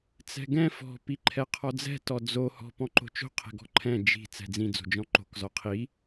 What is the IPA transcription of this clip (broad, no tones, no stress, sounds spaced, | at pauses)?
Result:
t͡s ɛ̤ ɡ ɛ̃ f ɔ̤ p i ǃʰ ɛ qʰ ɔ d͡z ɛ̤ t ɔ d͡z o h ɔ̤ p ɔ̃ ǃ o̤ t͡ʃ o̤ qʰ ɛ̤ ɡ ɔ̤ ǃʰ ɛ̃ d͡ʒ i̤ t͡s ɛ̤ d͡z ĩ d͡z o̤ d͡ʒ ɔ̃ ǃ o̤ k z ɔ qʰ i